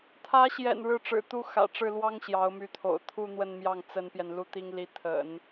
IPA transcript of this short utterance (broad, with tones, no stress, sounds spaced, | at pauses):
t̪ʰ ä˧˥ ɕ j ɛ̰˨˩ n ɻ ɻ̩˥˩ ʈ͡ʂ ɻ̩˨˩ t̪ u˥ x ä̰˨˩ ʈ͡ʂ ɻ̩˥˩ l w ɑ˥ ŋ ɕ j ɑ˧˥ ʊ̯ m y˧˥ t̪ʰ o̰˨˩ ʊ̯ t̪ʰ u˥˧ n̪ w ə˥˧ n m j ɑ˥˩ ŋ t͡s ə˥ n p j ɛ˨ n l u˥˩ t̪ i˥ ŋ l i˧˥ t̪ʰ ə̰˨˩˦ n